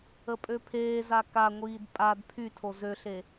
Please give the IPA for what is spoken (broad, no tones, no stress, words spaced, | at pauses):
əpʼøpʰeːza kaŋʷiːd pʼad pʰytʰo zøɬe